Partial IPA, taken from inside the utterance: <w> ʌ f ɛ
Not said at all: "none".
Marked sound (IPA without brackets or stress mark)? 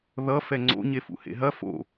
ð